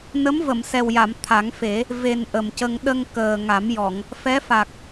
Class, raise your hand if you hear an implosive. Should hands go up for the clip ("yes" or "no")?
yes